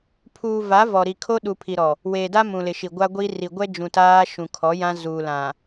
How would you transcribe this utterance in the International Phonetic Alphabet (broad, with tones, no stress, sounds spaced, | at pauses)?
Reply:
pʰ uː˨ v a˨˦ v ɔ˨ ɾ i˨ kʰ o˦ ɗ u˨ pʰ i˨ ɾ ɔ˨ | w eː˨ d a˦ m ũ˨ l ɪ˨ ʃ i˨ ɡʷ a˦ ɡʷ i˦ r i˨ ɡʷ ɛ˦ d͡ʒ ũ˨ t aː˦ ʃ ũ˨ kʰ ɔ˨˦ j ã˦ z uː˨ l ã˨